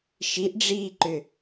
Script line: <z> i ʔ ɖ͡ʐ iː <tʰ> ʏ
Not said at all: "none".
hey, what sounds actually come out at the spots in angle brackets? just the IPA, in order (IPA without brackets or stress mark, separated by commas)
ʃ, ǃ